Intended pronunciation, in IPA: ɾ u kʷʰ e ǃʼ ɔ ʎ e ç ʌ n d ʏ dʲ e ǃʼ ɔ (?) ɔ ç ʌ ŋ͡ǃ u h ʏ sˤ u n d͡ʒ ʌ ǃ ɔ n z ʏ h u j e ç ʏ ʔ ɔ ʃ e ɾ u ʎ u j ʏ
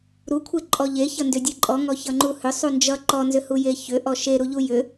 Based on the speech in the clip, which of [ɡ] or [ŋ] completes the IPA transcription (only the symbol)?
ŋ